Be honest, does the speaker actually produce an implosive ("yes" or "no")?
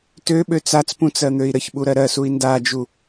yes